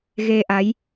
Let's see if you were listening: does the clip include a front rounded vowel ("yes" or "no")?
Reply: no